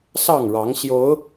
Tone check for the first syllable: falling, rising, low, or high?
falling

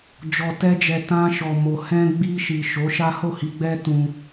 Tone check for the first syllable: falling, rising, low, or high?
low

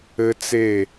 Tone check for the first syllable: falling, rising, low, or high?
high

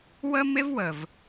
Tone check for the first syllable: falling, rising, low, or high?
high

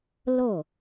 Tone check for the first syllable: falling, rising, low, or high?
falling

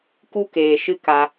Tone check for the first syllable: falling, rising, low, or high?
high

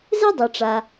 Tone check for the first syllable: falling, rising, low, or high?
high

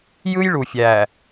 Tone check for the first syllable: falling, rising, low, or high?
high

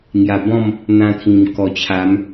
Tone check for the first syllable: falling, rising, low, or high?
low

